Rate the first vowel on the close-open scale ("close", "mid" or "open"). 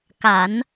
open